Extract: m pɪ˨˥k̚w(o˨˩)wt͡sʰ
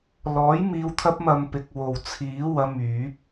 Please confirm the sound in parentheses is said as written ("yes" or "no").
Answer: yes